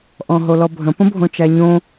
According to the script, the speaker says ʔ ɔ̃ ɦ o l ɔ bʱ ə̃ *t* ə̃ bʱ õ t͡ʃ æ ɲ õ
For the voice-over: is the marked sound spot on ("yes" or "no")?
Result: no